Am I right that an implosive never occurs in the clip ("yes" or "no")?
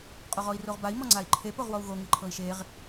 yes